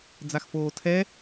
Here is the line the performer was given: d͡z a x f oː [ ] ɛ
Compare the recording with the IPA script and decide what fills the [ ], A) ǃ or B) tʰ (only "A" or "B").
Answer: B